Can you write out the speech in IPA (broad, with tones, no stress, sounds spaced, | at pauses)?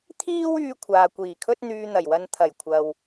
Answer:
t̪ʰ iː˥ w yː˧ kʷʰ aː˨ kʷ iː˨˩ kʰ ɵ˥ t̚ n̪ yː˧ n̪ ɐ˨˩ j w ɐ˧ n t̪ʰ ɐ˨˩ j kʷʰ ɐ˨ w